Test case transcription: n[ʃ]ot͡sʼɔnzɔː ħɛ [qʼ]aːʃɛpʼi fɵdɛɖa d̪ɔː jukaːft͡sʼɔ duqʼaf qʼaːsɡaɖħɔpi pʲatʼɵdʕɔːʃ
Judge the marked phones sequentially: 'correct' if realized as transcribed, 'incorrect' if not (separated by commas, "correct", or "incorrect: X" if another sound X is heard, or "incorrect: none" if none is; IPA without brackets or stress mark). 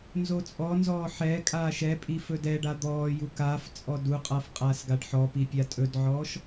incorrect: z, incorrect: kʼ